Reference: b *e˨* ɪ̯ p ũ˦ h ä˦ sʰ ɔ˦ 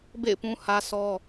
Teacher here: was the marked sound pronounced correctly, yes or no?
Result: no